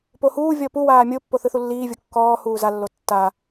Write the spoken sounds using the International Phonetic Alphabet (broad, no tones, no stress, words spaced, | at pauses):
pohuːvʲɔ pu waːmʲopːo θɯθulːiːvʲo kːɔːhuː zalːo tːa